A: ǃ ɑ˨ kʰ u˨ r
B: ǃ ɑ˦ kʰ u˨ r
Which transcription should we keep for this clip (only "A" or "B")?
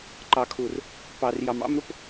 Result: A